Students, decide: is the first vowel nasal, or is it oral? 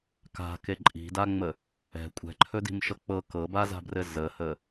oral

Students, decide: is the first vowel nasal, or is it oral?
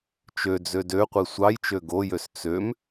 oral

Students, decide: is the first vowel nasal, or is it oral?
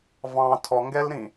nasal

